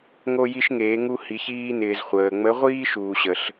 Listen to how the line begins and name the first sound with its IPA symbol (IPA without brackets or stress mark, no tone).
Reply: ŋ